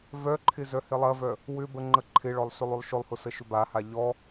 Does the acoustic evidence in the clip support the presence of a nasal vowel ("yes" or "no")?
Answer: no